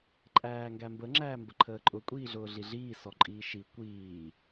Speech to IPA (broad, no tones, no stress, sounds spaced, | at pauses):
ǃʼ æː ŋ ɡ æ m b ə ŋ͡ǁ æː m b ə ǃʰ əː ǃʼ ʊ kʷʼ iː ɮ ʊː ɮ i ɮ iː s ɔ ǃʼ iː ʃ i kʷ iː